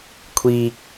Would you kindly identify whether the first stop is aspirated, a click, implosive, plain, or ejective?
aspirated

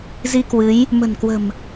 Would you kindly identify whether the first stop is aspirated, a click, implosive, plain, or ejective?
plain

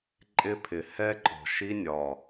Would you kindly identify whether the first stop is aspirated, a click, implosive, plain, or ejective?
click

